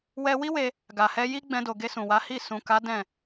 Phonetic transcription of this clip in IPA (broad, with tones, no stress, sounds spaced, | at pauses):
w ɛ˧ w i˦ w e˧ | ɡ a˨ h ɛ˧ j i˦ ɡ͡b ɛ̃˧ d o˨ ɡ e˧ s ũ˨ w a˨˦ h i˦˨ s ũ˨ k a˨˦ d ɛ̃˦˨